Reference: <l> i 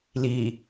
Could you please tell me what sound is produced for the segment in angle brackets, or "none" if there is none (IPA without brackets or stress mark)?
l